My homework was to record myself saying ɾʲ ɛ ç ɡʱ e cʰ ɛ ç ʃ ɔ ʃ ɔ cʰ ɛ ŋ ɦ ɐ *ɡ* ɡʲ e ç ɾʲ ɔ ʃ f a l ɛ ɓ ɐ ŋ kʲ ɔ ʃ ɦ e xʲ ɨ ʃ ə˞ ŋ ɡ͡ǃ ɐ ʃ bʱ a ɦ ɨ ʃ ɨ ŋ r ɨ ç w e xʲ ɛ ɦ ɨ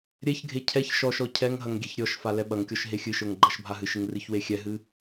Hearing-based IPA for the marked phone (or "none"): ŋ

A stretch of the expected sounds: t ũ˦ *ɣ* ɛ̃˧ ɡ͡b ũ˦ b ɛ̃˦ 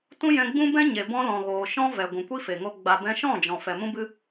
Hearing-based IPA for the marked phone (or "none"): j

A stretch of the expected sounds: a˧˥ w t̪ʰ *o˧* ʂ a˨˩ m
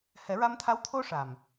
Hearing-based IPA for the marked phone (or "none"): o˧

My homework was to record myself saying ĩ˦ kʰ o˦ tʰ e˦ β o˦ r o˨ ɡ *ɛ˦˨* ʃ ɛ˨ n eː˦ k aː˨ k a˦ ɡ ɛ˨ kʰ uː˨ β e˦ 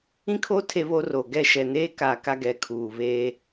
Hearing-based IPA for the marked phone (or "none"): ɛ˦˨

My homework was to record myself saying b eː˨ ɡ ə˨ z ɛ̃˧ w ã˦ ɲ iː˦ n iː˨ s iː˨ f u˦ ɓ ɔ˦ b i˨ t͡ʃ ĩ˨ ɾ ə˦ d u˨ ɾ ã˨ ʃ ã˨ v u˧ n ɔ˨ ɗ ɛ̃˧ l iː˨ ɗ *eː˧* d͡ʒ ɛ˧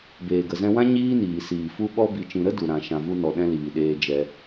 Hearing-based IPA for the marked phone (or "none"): eː˧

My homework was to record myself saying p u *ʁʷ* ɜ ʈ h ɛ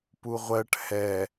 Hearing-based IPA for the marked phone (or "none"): ʁʷ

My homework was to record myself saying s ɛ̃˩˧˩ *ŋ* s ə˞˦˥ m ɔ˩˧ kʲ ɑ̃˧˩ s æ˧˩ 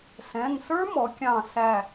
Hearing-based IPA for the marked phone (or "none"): ŋ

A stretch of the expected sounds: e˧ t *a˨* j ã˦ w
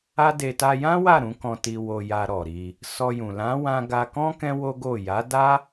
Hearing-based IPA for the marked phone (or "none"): a˧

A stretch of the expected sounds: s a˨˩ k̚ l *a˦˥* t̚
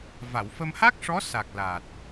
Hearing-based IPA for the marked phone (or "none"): a˨˩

